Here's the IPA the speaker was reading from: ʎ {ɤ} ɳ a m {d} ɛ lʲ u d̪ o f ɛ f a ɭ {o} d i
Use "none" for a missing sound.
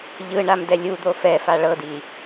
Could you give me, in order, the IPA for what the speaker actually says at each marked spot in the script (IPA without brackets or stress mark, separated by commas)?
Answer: ɯ, d, ɤ